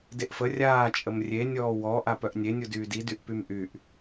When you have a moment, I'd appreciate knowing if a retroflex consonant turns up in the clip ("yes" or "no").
no